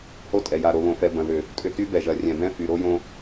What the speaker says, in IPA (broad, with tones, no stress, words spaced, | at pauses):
ho˦tʼɛ˨ja˨ ɾo˨βõ˨fɛ˨ bɐ̃˨ðʏ˨ | tʼʏ˦ ty˦bɛ˨ʒɐ˨ rʲɛ̃˨bɛ̃˦ fy˨ɾo˦jõ˦